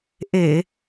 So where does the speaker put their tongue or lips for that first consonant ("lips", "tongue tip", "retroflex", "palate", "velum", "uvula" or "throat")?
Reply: throat